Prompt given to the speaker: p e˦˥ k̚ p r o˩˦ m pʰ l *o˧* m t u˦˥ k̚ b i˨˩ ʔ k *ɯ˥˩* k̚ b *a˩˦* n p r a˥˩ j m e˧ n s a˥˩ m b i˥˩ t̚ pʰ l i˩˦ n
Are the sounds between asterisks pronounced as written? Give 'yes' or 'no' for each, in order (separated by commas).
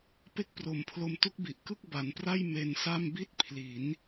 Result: yes, yes, yes